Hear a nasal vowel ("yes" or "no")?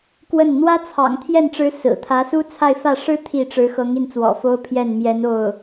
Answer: no